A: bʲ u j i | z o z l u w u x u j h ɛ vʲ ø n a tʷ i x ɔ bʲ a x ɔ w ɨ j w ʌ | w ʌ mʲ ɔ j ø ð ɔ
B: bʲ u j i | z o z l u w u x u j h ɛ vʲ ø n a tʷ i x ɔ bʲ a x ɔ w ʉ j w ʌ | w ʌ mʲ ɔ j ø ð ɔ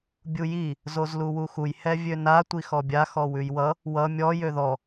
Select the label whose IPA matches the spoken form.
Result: B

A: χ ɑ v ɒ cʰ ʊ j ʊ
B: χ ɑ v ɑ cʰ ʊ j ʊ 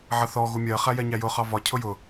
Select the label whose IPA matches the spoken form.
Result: A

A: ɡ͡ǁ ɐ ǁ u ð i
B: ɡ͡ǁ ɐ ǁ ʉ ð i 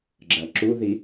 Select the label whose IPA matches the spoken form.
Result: A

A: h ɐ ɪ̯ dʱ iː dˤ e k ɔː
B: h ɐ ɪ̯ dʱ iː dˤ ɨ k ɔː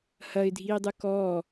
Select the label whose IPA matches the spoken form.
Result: B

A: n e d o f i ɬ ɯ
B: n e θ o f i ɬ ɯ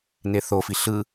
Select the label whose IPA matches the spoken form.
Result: B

